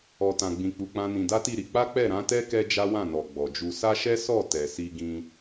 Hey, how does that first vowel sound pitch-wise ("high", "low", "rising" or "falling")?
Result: low